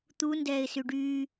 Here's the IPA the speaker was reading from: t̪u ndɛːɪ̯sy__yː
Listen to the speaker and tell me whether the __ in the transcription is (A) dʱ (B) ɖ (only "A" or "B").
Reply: B